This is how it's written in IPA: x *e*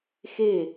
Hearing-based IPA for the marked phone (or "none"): e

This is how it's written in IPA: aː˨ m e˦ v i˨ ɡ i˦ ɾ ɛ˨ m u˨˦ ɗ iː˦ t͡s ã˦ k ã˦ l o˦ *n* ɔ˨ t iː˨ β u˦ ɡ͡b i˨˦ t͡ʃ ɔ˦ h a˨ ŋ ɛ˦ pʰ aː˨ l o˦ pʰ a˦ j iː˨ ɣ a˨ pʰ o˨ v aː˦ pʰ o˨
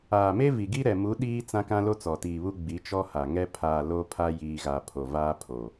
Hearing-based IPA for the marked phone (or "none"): t͡s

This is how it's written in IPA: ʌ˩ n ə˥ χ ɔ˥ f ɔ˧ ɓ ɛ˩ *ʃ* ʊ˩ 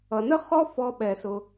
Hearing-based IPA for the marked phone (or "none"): s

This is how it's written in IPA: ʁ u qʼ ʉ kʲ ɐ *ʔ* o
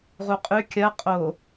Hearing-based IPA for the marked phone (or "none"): qʼ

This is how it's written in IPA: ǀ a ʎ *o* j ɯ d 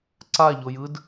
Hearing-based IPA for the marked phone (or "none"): o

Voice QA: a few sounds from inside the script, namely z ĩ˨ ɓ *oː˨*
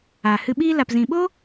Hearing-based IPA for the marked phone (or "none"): oː˦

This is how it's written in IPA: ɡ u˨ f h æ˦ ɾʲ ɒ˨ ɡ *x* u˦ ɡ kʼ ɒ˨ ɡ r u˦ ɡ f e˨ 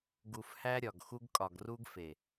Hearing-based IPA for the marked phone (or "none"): x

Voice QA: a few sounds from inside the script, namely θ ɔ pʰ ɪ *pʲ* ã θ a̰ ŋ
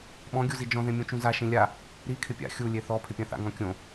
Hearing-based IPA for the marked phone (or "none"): pʲ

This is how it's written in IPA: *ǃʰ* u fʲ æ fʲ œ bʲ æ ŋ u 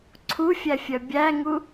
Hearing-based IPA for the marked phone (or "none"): ǀʰ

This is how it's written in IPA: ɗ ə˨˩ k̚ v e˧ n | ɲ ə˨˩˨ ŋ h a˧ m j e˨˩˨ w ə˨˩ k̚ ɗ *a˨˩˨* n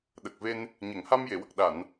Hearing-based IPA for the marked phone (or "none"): a˨˩˨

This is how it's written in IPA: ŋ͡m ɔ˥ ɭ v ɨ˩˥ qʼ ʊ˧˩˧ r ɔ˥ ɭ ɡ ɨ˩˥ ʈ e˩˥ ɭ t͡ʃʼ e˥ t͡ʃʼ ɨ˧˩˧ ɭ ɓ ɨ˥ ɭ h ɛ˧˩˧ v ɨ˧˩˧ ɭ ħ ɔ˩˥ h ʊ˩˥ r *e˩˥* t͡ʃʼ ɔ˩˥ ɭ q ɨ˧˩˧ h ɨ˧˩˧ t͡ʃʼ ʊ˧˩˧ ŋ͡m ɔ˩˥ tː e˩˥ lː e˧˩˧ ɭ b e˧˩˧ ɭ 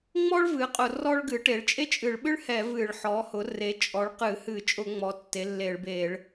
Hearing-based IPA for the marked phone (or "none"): e˩˥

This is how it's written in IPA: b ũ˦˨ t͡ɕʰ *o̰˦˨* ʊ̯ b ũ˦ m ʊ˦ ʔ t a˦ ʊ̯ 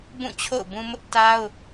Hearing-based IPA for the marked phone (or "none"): o̰˦˨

